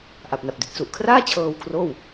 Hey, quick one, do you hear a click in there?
no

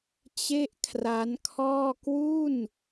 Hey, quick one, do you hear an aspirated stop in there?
yes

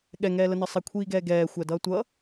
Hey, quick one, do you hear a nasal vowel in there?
no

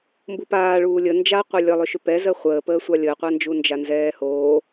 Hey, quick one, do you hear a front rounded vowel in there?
yes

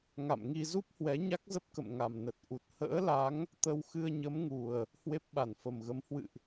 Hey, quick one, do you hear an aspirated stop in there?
no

